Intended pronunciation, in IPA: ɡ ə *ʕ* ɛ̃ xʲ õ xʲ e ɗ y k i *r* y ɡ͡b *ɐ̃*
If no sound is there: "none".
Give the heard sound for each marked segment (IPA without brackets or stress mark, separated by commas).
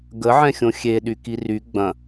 ʕ, r, ɐ̃